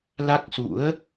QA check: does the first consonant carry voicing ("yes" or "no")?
yes